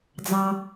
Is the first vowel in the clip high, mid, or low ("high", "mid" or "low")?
low